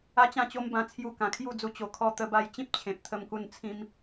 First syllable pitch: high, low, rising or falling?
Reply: high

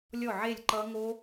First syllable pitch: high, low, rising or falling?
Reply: falling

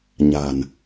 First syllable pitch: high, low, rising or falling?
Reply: low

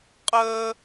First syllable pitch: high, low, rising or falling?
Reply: high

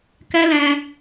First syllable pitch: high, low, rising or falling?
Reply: high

